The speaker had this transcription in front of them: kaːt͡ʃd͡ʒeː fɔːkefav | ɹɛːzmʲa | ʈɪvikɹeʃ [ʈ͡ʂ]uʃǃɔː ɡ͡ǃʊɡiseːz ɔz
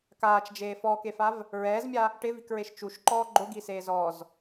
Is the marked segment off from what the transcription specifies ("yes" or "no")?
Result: yes